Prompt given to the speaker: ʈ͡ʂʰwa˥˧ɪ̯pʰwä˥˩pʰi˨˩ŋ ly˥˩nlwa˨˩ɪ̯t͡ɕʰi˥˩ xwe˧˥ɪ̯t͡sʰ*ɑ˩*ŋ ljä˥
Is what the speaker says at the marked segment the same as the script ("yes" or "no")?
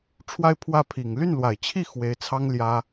no